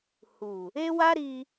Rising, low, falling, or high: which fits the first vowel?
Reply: low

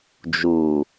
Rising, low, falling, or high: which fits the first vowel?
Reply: low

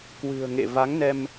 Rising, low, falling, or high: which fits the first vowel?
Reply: low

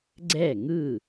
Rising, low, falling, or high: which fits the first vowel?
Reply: falling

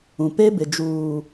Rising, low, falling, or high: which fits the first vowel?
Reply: low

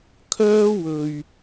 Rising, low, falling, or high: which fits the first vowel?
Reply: high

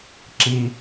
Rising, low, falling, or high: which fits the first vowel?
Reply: high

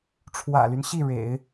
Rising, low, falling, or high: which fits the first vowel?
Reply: low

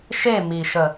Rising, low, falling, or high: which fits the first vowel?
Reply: falling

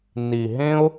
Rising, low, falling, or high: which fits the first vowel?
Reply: low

